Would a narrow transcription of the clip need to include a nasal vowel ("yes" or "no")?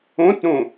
yes